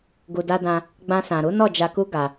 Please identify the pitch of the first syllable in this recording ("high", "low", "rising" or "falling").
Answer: low